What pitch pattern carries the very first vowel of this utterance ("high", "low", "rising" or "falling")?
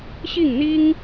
falling